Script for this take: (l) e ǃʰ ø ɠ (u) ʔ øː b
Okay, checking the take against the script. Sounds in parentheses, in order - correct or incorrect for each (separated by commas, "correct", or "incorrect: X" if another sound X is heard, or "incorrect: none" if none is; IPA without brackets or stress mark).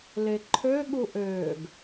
correct, correct